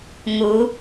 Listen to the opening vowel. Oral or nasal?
oral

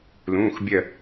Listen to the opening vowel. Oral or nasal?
nasal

